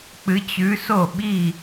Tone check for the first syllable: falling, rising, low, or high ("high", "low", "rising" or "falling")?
rising